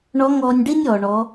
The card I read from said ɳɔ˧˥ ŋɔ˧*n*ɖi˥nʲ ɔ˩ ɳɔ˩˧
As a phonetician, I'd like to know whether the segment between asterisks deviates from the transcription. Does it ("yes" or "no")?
yes